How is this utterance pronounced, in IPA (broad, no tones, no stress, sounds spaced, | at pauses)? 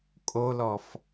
kʼ o l ɔ f